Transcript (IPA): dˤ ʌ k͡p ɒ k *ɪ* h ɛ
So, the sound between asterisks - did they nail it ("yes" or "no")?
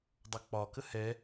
no